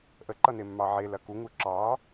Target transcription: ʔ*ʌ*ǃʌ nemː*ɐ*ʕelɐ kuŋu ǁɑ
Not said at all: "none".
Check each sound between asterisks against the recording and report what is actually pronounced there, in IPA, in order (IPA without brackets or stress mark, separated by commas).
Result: ə, ɑ